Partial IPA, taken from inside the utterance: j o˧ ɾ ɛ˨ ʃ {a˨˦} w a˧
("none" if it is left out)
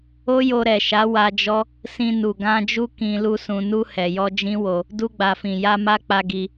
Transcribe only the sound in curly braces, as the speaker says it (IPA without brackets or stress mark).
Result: a˨˦